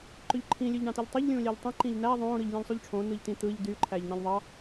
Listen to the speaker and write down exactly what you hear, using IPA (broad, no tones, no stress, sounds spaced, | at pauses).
ǃ ø ʎ ǃʰ ĩ lʲ ø ʎ ɳ ɑ̃ t i ʎ tˤ e ʎ lʲ ũː lʲ æ ʎ tˤ ẽ ǃ ĩ ʎ n æ ðˤ õː ɾ ɯ ʎ lʲ ẽ ʎ sˤ u ʎ ʈ͡ʂʰ õː n ɯ ʎ t ĩ t̪ ɯː ʎ d y ǃʰ æː ʎ n ɑ̃ ʎ ðˤ ɑ